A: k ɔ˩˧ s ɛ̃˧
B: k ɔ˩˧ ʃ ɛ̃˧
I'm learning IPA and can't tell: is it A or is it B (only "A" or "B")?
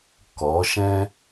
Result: B